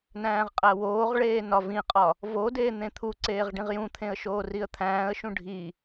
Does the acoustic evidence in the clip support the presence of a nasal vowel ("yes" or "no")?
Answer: yes